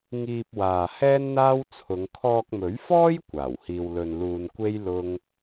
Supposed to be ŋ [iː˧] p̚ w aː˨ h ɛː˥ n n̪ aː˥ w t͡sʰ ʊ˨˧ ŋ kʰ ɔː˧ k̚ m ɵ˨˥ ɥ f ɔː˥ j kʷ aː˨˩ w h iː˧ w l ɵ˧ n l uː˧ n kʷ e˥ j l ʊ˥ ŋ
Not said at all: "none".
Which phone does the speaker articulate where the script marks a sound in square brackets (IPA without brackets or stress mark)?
iː˧